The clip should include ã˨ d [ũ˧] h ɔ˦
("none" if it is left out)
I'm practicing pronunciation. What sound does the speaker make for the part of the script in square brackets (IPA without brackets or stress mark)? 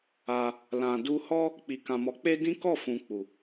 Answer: u˧